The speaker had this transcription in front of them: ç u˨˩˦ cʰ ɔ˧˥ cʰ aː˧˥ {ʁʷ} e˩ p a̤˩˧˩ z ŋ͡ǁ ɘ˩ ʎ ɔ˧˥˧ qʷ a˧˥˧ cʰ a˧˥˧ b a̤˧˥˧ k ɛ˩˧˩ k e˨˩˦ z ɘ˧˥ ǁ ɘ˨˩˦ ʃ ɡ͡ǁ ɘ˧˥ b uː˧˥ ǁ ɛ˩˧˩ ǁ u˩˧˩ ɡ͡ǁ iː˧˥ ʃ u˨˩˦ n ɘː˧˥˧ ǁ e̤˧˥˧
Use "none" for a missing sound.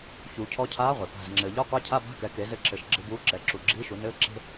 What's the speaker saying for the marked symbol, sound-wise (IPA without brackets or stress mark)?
ʁʷ